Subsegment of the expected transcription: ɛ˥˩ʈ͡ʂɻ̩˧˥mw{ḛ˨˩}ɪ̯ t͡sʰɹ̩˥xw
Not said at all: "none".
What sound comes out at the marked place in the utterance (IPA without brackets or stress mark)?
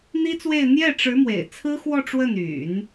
ḛ˨˩